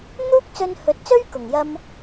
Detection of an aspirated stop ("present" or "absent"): absent